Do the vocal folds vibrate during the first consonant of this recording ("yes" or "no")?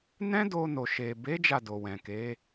yes